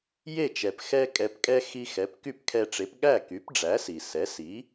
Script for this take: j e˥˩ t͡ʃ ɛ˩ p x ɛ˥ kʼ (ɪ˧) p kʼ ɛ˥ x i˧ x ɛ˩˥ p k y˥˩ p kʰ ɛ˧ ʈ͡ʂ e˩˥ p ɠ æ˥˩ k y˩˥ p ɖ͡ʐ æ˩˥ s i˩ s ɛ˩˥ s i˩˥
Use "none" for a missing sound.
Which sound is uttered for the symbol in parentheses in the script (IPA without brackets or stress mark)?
ɛ˧